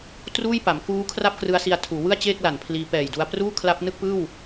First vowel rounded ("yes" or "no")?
yes